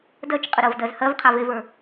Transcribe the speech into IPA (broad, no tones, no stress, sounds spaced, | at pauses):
d ɜ t͡ʃ qʼ ə ɾ ɜ v d ɜ z h ɜ v qʰ a v e v ə˞